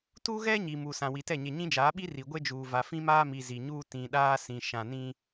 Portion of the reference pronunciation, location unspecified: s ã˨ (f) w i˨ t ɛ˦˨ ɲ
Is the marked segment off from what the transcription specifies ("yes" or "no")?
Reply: yes